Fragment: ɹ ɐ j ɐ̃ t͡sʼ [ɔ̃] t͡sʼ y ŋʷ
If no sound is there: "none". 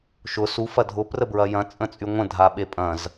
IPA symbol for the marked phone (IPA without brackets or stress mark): ə̃